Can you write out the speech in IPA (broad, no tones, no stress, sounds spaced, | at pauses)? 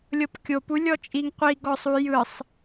lʲ ɤ p kʲ o p u lʲ ɔ t͡ʃʼ i ŋ qʷ i ɡ ɔ sˤ u j ɯ sˤ